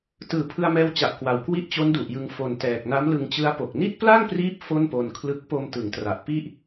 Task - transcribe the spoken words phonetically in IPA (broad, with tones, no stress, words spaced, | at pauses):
tɯː˨˩pʰɯ˧a̯mɛː˧wt͡ɕa˨˩ʔ kwa˨˩w kwi˦˥ʔt͡ɕo˦˥ndu˨˩ʔjɯ˧ŋ fo˨˩ntɛː˨˩k̚ na˦˥mlɯ˧ŋt͡ɕɯ˦˥a̯po˨˩k̚ ni˥˩t̚pla˥˩ŋpriː˦˥p̚ fo˥˩npo˧nkʰlɯ˦˥k̚ po˧mtɯ˩˦ŋtra˨˩ʔ pi˥˩ʔ